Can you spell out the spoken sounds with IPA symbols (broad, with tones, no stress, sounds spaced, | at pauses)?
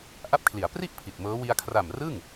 ʔ a˦˥ p̚ kʰ l i˩˦ a̯ p r i˥˩ ʔ pʰ i˨˩ t̚ m ɤː˦˥ w i˧ a̯ kʰ r a˨˩ m r ɯ˥˩ ŋ